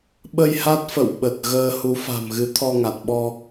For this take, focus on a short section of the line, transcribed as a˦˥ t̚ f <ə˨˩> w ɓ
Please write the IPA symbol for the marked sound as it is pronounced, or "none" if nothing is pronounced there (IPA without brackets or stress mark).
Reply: ə̰˧˨